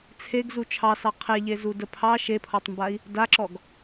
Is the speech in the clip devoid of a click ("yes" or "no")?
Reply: no